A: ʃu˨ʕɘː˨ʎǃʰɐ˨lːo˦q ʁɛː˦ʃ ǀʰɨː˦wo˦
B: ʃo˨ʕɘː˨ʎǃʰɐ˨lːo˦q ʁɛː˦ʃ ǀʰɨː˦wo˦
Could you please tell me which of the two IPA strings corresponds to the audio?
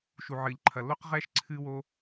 A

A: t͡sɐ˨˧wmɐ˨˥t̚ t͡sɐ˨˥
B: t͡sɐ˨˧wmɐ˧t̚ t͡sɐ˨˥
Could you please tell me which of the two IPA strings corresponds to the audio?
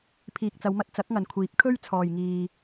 B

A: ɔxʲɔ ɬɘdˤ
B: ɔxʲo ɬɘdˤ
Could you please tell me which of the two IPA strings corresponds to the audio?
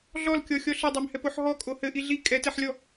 A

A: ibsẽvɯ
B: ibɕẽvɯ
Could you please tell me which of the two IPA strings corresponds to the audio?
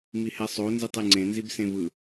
A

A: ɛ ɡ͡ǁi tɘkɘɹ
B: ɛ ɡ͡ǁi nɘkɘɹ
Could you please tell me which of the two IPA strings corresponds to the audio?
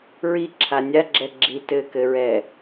A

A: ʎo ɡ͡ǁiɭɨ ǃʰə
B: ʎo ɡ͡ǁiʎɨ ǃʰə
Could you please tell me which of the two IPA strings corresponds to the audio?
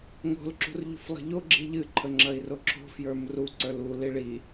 B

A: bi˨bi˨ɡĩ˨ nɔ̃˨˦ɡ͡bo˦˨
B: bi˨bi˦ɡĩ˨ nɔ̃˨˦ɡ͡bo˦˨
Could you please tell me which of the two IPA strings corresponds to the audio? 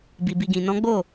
A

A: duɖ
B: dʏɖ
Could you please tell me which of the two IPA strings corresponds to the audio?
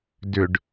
B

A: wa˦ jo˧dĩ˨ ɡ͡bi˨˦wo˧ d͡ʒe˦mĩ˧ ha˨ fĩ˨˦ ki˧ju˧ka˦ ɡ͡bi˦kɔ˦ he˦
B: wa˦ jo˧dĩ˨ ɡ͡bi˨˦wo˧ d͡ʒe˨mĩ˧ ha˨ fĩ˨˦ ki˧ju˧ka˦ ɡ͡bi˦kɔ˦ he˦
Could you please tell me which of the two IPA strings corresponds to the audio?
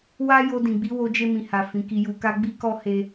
A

